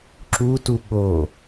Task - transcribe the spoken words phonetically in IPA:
ǁ u t u ɠ o

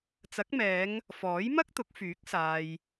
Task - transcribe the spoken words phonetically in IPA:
t͡s ɐ˨˥ k̚ m ɛː˨˧ ŋ | f ɔː˨˥ j m ɐ˥ k̚ t̪ ʊ˨˥ k̚ f yː˨˥ k̚ s aː˨ j

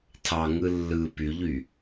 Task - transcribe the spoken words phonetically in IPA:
tʰ ɑ ŋ ɯ lː ɯ p y ʎ y

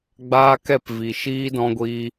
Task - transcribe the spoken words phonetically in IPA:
ɡ͡b aː˦ k ɛ˦˨ p v i˨ ʃ iː˦ d ɔ̃˧ ɡʷ i˧

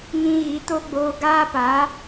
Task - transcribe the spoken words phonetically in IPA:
ŋ ĩ˧ ɣ i˨˦ t o˦ ɡ͡b oː˧ ɡ aː˦ p a˨˦

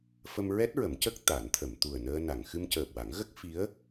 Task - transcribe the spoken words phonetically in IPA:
f ə˧ m ɹ ɛ˦˥ t̚ ɹ ə˨˩˦ m c ə˦˥ k̚ t̪ a˨˩˦ n t̪ʰ ə˨˩˨ m t̪ u˨˩ ə̯ n əː˧ n a˨˩˨ ŋ x ɨ˧ m c əː˨˩ p̚ w a˨˩˦ ŋ ɣ ə˦˥ k̚ f i˧˥ ə̯

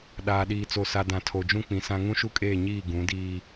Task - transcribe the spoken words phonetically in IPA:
ɗ aː˨ ɗ iː˨ t͡s o˨ s a˨ d ã˨ tʰ o˨ d͡ʒ ũ˦ k͡p ĩ˨ s ã˦ ŋ ũ˦ ʃ u˦ kʼ eː˦˨ ɲ iː˦˨ ɡ ũ˨˦ d iː˦

